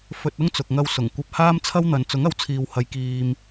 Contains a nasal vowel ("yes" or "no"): no